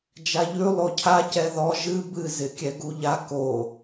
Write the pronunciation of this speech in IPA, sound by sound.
d͡ʒaʎʉ lˠocʰa cɛðɔ ʒɨ bɨ zɪkʲɛɡuʎa ko

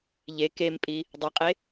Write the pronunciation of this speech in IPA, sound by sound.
ʎe kempʼi | dˤiqʼe

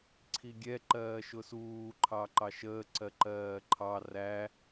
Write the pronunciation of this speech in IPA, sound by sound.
ǀʰiɡʲɛ ǃɜːʃʊsuː ǃʰɑǃɑʃəː ǀɜǃɜːǃʰɑ ræ

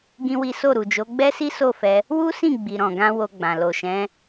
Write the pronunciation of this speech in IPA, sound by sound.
ɡĩ˦wi˦ so˦˨ɾu˨d͡ʒo˨˦ ɡ͡bɛ˦si˦so˦˨fɛ˧ | wu˦sĩ˦˨ ɡ͡bi˨ɾɔ̃˨ɡã˧ wo˧ɡ͡bã˨ lo˨ʃɛ̃˨˦

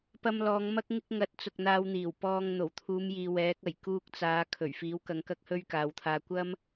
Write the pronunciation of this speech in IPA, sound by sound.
pɐ˧mlɔː˨˧ŋ mɐ˧k̚ŋɪ˧k̚ ŋɐ˨˥t̚t͡sʊ˨k̚n̪aː˧wn̪iː˨˩w pɔː˨ŋ n̪o˨˩wt̪ʰuː˨˧mjiː˨ wɛː˨˥k̚ɐ˨˩j kuː˧k̚t͡saː˨˧ kʰɵ˨˩ɥfiː˨˥wkɐ˨˧ŋ kɐ˥k̚hɵ˥ɥkaː˨˧wt̪ʰaː˧ kʷɐ˥m

